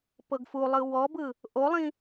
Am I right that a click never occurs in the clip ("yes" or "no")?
yes